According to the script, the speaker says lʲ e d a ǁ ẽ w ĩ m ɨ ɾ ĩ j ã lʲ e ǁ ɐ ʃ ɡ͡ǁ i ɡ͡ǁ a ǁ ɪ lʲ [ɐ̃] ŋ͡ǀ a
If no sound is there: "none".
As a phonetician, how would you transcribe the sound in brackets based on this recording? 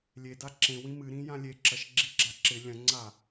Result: ɐ̃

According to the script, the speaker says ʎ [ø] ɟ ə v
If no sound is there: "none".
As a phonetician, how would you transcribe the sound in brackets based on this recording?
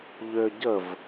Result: ø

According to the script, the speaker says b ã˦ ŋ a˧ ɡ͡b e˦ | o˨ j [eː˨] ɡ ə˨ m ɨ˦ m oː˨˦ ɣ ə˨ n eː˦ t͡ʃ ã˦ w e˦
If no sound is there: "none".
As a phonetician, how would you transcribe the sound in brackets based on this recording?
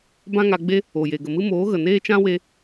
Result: e˨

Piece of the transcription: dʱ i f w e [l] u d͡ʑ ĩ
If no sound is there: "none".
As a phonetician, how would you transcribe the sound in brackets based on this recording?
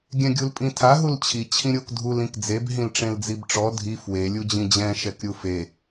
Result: lʲ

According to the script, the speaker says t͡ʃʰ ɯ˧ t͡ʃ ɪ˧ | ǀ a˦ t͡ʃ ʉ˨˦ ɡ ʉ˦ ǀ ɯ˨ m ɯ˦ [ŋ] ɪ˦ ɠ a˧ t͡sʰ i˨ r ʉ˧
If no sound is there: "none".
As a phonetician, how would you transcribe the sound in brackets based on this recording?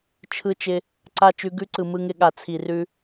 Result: ŋ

